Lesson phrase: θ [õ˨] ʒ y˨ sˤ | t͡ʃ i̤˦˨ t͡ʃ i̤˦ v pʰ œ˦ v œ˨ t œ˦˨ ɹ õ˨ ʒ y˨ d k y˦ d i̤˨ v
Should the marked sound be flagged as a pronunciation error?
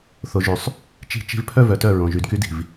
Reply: yes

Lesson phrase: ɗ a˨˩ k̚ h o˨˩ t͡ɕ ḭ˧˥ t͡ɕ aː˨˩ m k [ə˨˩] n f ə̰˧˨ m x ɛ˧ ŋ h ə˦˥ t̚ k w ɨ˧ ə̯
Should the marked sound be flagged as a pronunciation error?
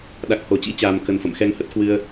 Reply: no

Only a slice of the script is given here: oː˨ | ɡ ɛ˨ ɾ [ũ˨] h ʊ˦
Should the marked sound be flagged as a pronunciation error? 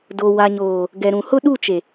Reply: no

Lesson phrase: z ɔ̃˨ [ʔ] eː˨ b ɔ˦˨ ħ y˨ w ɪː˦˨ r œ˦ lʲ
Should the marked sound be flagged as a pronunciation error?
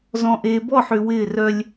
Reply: no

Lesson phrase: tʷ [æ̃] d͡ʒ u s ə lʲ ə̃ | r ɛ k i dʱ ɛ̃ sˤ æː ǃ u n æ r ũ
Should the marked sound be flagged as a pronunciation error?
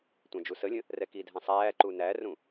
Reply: no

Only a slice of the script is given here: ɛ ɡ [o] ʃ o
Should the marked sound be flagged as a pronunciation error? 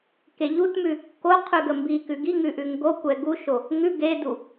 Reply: yes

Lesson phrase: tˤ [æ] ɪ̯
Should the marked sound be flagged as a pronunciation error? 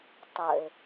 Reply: yes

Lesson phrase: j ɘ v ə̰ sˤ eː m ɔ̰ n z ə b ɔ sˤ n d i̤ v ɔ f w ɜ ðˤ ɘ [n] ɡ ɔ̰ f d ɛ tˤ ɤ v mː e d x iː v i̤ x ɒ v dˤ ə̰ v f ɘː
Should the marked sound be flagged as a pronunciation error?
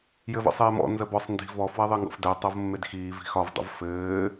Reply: yes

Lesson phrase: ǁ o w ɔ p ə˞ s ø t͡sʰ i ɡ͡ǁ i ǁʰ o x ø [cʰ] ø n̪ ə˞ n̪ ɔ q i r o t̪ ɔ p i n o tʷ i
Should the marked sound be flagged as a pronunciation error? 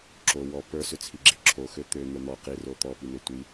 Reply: yes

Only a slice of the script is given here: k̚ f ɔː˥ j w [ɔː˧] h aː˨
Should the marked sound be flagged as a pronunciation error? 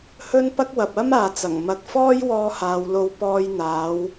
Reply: no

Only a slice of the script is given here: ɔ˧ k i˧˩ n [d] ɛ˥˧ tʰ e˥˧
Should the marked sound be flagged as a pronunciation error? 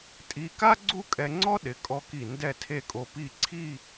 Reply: no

